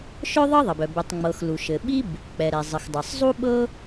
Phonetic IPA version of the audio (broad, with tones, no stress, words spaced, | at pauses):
ʃœ˥ðˤɤ˥ðˤɘ˩bœ˩ bɪ˩tˤŋ͡mɤ˩x lu˩ʃɘ˩ɓi˥b | k͡pɛ˩ɾɛ˩ zˤɘ˩xdˤɤ˩sˤ zˤu˥ɓɤ˥